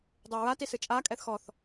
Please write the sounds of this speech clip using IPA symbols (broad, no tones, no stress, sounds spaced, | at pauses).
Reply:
dˤ u ɹ a t i s ɨ t͡ʃʼ a kʼ ɛ θ x ɔ θ